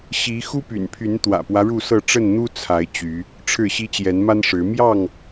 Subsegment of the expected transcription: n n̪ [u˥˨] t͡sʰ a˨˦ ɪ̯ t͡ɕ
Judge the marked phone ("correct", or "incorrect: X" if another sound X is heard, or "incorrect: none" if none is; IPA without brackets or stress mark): incorrect: u˦